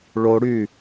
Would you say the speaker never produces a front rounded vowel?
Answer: no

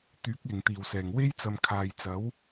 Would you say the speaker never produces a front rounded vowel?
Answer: no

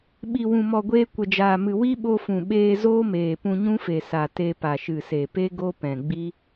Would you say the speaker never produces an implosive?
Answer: no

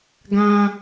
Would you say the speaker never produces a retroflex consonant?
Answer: yes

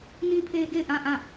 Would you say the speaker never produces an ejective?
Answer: yes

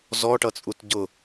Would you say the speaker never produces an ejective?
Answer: no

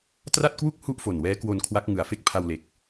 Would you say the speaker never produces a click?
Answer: yes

